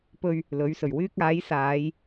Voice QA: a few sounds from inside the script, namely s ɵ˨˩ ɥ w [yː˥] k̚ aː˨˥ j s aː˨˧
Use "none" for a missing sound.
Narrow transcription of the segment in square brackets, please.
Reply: yː˥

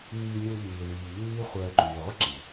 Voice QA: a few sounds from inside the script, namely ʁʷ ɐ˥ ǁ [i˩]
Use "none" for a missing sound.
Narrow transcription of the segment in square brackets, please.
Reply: i˩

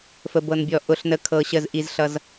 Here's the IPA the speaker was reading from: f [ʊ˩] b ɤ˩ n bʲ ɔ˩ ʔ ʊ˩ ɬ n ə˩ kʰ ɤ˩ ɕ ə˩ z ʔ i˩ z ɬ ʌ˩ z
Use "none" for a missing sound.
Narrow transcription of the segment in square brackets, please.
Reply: ə˩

